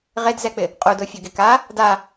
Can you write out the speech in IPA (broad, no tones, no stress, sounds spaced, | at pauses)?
ʁ e d z ɛ k͡p ɪ | qʼ u d o fʲ o ɡ e k a | d a